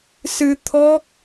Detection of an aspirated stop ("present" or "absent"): present